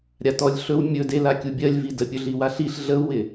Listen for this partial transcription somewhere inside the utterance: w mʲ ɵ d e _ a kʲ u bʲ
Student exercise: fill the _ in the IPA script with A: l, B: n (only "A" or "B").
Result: A